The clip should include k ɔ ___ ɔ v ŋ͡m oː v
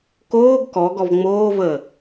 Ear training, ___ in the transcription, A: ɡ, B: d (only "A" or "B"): A